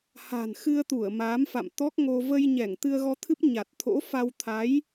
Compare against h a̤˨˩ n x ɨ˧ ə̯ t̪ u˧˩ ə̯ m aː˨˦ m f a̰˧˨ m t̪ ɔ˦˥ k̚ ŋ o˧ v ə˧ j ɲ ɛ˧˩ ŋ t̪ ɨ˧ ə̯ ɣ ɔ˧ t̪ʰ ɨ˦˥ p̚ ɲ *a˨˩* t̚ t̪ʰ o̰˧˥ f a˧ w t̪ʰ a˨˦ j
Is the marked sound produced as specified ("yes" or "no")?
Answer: yes